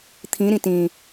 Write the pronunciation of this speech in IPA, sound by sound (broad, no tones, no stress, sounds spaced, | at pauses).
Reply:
t̪ʰ ĩ ɾ ĩ t ĩ